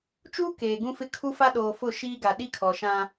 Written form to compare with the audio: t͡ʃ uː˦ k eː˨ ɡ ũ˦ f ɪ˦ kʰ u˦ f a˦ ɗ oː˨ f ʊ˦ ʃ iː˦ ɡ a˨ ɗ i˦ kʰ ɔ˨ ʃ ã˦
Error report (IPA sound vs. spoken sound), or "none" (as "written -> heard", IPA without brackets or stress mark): ʊ˦ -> ʊ˦˨